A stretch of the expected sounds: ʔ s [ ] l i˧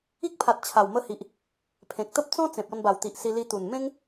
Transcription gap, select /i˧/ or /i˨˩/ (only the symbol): i˧